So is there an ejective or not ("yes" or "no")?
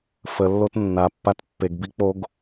no